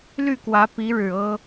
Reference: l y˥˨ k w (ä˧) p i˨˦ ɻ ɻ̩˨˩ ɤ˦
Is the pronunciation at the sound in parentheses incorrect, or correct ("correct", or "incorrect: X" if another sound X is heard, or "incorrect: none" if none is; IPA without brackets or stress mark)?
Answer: incorrect: ä˨˦